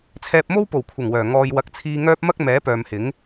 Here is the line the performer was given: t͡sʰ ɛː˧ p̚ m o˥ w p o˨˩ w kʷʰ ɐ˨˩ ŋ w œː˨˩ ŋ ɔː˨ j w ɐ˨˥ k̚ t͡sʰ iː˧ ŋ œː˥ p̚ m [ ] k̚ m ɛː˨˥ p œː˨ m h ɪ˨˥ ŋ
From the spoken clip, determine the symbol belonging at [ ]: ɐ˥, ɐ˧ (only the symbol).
ɐ˥